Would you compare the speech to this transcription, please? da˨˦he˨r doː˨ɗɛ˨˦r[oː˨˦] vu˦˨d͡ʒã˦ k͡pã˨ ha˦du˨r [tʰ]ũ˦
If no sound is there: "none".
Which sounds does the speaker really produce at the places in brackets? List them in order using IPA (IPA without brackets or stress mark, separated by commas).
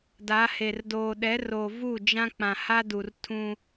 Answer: oː˨, tʰ